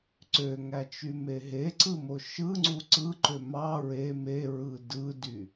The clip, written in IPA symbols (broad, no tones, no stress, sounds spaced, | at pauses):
ǀ ø ŋ æ t͡ʃ y m e ɦ e ǀ ɯ m o ʃ ɯ ŋ͡ǀ u ǀ ɯ ǃ ø m ɑ ɹ e m e ɹ ɯ d ɯ d y